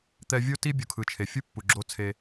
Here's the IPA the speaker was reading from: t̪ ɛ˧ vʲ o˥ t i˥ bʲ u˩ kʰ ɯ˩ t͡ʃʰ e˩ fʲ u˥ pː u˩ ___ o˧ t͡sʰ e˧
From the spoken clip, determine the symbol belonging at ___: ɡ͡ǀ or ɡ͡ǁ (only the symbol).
ɡ͡ǁ